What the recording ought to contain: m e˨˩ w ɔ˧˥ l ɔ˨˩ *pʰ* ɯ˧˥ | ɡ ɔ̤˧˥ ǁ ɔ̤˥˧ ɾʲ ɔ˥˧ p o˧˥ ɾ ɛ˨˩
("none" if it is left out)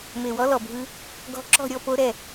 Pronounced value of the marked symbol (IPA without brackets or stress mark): bʱ